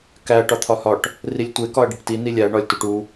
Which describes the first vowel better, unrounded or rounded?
unrounded